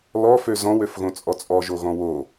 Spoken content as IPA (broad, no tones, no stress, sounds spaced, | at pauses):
l ɔ f ø z ɔ̃ w ø f ɣ õ t͡sʼ ɔ t͡sʼ ɔ ʒ o ɣ ɔ̃ w o